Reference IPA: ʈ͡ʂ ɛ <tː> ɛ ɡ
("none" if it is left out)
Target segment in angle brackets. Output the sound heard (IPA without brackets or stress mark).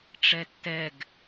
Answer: tː